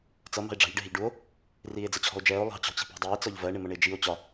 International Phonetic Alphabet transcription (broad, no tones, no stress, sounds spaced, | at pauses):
t͡s ʌ m ɑ̤ e̯ ɖ͡ʐ ɑ̤ ʎ ɖ ɪ ɦ ɪ ʎ ɖ u o̯ | r iː e̯ d͡z ə t͡ɕʰ ɔ̤ o̯ d͡ʒ ɛː o̯ lˠ ɑ̤ t͡ɕ ɔ̤ t͡ɕ i̤ p ɑ̤ dˤ iː t͡s ɒ ʎ v ɜ ɳ ɪ m ʌ ɳ ɪː d͡ʒ i o̯ t͡ɕ ɒ